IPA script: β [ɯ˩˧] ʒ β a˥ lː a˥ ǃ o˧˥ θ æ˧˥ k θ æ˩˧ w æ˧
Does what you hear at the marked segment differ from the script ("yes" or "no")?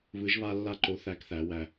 yes